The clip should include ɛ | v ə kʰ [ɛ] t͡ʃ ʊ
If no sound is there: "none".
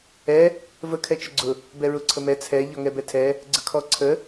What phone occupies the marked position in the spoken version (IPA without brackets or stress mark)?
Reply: ɛ